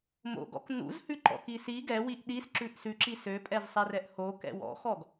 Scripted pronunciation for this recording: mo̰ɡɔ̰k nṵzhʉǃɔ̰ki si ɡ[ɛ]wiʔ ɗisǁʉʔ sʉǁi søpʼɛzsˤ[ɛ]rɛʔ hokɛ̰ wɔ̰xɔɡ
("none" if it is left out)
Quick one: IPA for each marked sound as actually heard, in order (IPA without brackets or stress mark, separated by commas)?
ɛ, ɛ